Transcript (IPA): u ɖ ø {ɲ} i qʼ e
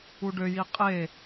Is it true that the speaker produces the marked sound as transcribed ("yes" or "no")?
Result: no